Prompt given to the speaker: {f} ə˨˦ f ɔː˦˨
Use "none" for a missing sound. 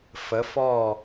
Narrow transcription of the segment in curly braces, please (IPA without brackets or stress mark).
f